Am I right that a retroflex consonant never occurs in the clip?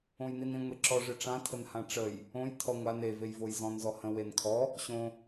no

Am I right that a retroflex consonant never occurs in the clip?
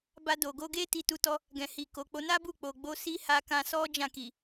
yes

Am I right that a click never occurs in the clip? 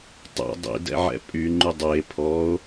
no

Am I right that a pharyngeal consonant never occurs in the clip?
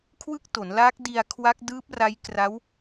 yes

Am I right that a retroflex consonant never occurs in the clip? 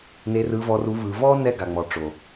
no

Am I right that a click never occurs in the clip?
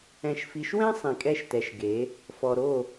yes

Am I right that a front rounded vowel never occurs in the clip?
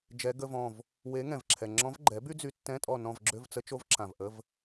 no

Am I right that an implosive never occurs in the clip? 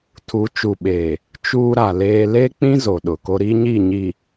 no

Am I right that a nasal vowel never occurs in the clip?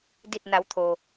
yes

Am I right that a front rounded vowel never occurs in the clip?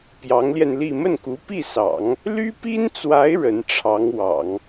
no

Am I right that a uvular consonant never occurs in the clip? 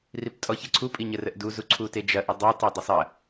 yes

